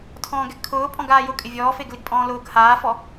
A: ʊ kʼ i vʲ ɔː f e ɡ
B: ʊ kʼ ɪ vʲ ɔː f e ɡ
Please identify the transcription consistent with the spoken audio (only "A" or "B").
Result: B